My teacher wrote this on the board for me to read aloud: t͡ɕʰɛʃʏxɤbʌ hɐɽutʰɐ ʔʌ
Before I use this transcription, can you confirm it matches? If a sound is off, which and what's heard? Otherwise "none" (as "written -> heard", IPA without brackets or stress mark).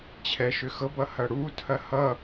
ʔ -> h